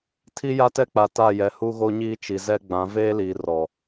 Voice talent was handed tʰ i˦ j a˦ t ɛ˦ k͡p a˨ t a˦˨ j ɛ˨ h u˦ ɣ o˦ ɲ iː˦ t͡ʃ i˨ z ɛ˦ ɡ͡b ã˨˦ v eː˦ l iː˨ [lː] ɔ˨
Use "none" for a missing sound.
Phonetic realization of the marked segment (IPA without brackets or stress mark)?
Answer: r